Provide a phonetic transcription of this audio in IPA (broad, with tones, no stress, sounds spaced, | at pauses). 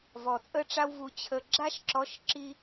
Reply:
v ɔ˨ t͡sʼ ə˦ ʈ͡ʂ a˦ w v u˨ t͡ɕʰ ə˨ ɡ͡ǁ a˦ ʃ ǁ ɔ˨˦ ʃ ǁ i˦